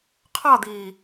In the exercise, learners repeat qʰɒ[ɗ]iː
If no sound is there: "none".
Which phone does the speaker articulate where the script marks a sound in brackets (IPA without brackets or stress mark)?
d̪